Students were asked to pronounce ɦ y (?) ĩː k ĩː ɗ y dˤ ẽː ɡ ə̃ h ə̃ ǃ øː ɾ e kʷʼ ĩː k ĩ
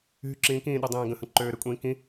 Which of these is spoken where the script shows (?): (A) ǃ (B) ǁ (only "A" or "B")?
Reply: B